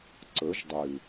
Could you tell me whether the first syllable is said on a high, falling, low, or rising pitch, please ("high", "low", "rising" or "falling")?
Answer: rising